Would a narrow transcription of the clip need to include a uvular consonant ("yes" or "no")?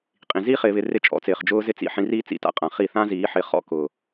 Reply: yes